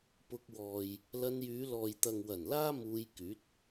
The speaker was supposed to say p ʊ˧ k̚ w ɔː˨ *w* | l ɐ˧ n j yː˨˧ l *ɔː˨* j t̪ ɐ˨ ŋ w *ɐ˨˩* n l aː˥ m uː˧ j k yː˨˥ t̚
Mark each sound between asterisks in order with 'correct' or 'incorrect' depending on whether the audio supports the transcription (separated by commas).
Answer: incorrect, correct, correct